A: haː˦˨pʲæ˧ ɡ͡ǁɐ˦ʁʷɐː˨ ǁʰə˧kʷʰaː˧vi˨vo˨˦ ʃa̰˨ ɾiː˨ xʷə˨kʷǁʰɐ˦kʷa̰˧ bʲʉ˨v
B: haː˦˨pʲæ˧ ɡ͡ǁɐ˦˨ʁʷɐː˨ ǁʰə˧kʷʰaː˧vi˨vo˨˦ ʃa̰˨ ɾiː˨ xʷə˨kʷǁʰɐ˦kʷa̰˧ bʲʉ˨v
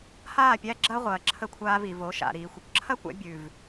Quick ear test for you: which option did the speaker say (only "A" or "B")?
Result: A